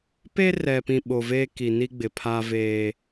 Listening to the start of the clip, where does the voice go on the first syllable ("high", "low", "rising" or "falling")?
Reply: high